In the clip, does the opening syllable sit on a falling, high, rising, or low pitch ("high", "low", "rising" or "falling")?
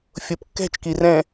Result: low